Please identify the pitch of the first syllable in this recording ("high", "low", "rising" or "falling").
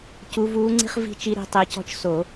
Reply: rising